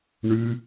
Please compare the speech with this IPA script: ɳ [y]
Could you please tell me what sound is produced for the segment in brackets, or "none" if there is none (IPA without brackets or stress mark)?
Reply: y